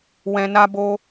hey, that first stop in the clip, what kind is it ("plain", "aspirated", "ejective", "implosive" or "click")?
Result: plain